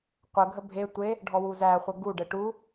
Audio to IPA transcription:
qʷ ə ɡʱ ə bʱ e tʷ e | ɖʱ ɔ w u z æ χʷ ə ɡ u ɖ ɘ ʈ u

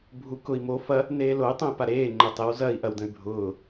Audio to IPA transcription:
bʱ u k ʊ i̯ m o f ɐ | n eː l o y̯ tˤ õ y̯ p a ɾ eː ŋ͡ǃ ə tˤ e w z ɐ i̯ ʔ ɐ w d ə̃ y̯ bʱ ʊː

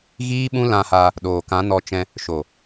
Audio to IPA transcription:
ɣ iː˦ ɓ ũ˦ l ã˧ h a˧ | ɗ oː˨ k ã˨˦ n ɔ˧ t͡ʃ ɛ̃˧ | ʃ o˨

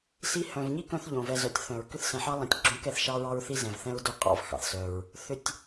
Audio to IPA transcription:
s i˦ h œ̃˨ v ɲ i˥ k œ̃˦ θ ʎ õ˩ v ɛ˨ z œ˨ tʲ θ œ̃˩ ɹ k ʏ˦ θ s ɛ̃˨ ħ ɑ˦ lˠ ĩ˨ tʲ ɡ͡ǁ õ˦ k ɛ˦ θ ʃ ɑ˦ ɹ ɑ˦ ɹ θ i˦ z ɛ̃˩ v θ ɛ̃˦ ɹ d o˦ qʼ ɑ̰˦ v x ɑ̰˩ θ s œ˩ ɹ | θ ʏ˩ tʲ

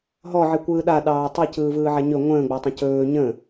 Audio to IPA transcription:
ɦ ɔ ʕ i kʷ ɯː ɗ a ɗ ɑː tˤ i c ɯː v ɯː ʕ a ɲ ɵ ŋʷ ə̃ː ɡ͡b ɑ tˤ ə̃ c ɵː ɲ ə̃

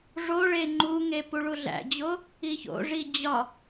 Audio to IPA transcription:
ʐ o ɭ e ŋ͡ǃ u ŋ e p u ɭ u ɮ æ̰ d͡ʑ o | i ç o̰ ʐ i d͡ʑ ɒ

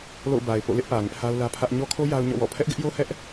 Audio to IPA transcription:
l o̰˦˨ ʊ̯ b a˨ ɪ̯ p o̰˦˨ l ɪ˦ ʔ p ä˨ ŋ ɪ˦ ʔ h a˦ ʊ̯ l ä˦ pʰ ä˦ ʔ ɲ ɔ˦ kʰ o˦ j a˦ ʊ̯ ɲ ɔ̰˦˨ w ɔ̰˦˨ pʰ ɛ˦ ʔ ɡ ɪ˦ ʔ j o˦ h ɛ˦ ʔ

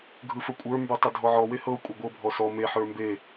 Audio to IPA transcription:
ɡʱ ɯ f ə kʷʼ ə˞ m b ə˞ tˤ ə dʱ ɔ ʕ ɔ w e h ɤ kʷʼ e ɡʷ ɤ bʱ ɔ s ɔ m e ħ ə˞ m b e

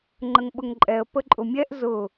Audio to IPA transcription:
ŋ͡ǃ ə ŋ ɓ ʊ ŋ ǃʼ ɛ ə̯ p ə ǃʼ ʊ mʲ ɛ ʔ z ʊ

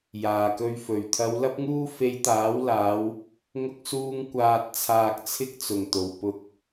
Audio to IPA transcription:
j aː˨˩ k ɵ˧ ɥ f ɵ˨˩ ɥ t̪ʰ ɐ˨˧ w l ɐ˥ p̚ ŋ uː˥ f e˧ j t̪ aː˨˥ w l aː˨˧ w | ŋ ʊ˧ k̚ s uː˧ ŋ kʷ aː˨ t̚ t͡sʰ aː˨ k̚ t͡sʰ ɪ˥ k̚ t͡s ʊ˨˩ ŋ t̪ o˨˩ w p ʊ˨ k̚

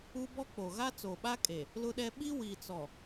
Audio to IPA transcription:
u˦ b ɔ˦ k͡p o˨ ɣ a˦ t͡s oː˨ ɓ a˦ kʼ e˨ | l ʊ˦ ɗ ɛ˦ ɓ i˦ w iː˨ t͡s ɔ˨

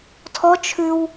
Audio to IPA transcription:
tʰ ɔ t͡ʃʰ ʉ w

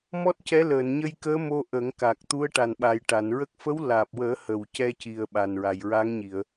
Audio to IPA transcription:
m ɔ˦˥ t̚ c ɛ˧˥ l əː˨˩˨ n ɲ ə˧ j k əː˧˥ m o˧ ʔ ə˨˩˦ ŋ k a˨˩ k̚ t̪ u˧˥ ə̯ ʈ a˨˩ n ɓ a˨˩ j ʈ a˨˩˨ n ɹ ə˦˥ k̚ f ə˧˥ w l aː˨˩ p̚ w əː˨˩˦ h ə˨˩ w c ɛ˧ c i˨˩ ə̯ ɓ a˨˩ n ɹ a˨˩ j ɹ a˧˥ ŋ ɲ i˨˩˨ ə̯

